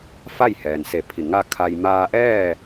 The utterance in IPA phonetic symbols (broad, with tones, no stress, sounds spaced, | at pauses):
f a˥˨ j h ɛː˩ n s e˧˩ pʰ i˧˩ ŋ a˥˨ kʰ a˧ j m aː˧ ʔ ɛː˥˨